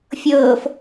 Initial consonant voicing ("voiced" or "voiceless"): voiceless